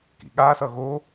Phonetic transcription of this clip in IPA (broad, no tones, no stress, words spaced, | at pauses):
kḭɠasʌ ɣo